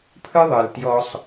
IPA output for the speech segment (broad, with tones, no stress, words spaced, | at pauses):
pʰɯ˦ðˤɯ˨ltjɔ˦sˤ